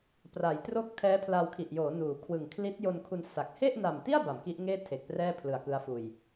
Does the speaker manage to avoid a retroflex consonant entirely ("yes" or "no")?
yes